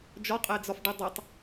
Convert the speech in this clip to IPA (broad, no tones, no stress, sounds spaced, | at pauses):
d͡ʒ ɒ qʼ ɛ d͡z ɒ f ɖ i dˤ ɛ tˤ